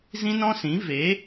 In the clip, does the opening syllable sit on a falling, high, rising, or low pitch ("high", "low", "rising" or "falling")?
high